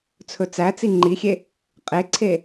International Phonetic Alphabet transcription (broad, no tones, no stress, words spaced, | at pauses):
t͡sʰɵt͡sæt͡si ŋ͡ǃixʲe | qʼeǀʰe